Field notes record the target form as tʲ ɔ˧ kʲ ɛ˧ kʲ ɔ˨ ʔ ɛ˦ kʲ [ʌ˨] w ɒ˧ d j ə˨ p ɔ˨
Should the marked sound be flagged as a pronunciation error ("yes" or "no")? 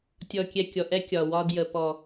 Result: yes